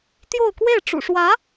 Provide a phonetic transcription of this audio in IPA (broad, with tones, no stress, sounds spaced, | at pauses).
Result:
t̪ j o˥˧ ʊ̯ k w e˥˩ ɪ̯ ʈ͡ʂ ṵ˨˩ ʂ w ä˧˥